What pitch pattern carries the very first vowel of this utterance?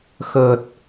low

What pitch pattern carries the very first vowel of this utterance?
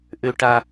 low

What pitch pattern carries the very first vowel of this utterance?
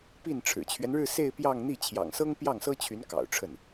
falling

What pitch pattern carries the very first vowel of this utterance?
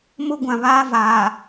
high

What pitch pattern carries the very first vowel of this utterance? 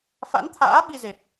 rising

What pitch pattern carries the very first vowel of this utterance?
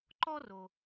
high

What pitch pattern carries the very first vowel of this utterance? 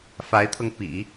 rising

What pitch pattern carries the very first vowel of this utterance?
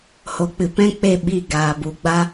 rising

